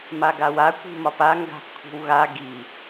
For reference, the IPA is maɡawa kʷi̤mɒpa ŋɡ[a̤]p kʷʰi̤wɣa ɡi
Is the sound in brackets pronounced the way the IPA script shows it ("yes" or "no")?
yes